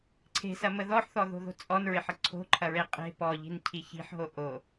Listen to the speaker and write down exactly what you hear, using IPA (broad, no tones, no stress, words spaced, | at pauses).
ǀʰe̤sɐmə ðɔħθɔðo̤ðo̤ t͡sʼɔnɹɪħə ǀʰo̤ǃʰɐɹe qʼe̤ pɔʎi̤ncʰi çi̤ħɦo ʔo